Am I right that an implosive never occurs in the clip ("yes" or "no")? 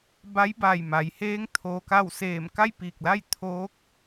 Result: yes